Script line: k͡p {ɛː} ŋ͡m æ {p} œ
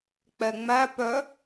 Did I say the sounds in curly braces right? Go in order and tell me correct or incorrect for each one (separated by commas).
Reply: incorrect, correct